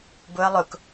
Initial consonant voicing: voiced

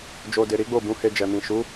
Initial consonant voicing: voiced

